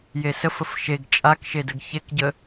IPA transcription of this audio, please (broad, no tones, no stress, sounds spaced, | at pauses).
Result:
j e s ə f ə f ʃ e ɡ t͡ʃʼ a k ʃ e d ə ɡ ç e k ɟ ə